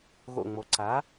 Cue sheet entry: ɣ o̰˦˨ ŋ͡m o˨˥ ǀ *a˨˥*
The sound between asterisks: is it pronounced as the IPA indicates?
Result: yes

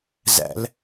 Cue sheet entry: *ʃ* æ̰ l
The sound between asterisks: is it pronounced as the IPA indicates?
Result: no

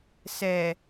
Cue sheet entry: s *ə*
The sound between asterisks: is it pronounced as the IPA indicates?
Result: no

